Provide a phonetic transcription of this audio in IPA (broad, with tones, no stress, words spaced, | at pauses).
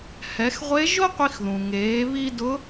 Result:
hɛ˩˧xʁʷe˧˥ ʒo˥qʷi˧xðũ˩ ŋeː˩˧βi˧ dʊ˧˥